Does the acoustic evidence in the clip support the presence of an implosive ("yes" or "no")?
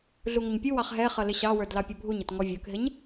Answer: no